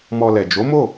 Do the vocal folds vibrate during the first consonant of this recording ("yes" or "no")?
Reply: yes